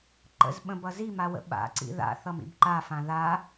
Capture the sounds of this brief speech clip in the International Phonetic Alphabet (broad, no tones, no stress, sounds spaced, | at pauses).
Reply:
ǃ ə̰ z ɓ ə̃ b ʌ z i m a w ə̰ ɓ a̰ ǀ ḭ ð a̰ θ ʌ m ḭ b ǃ a f ã ð a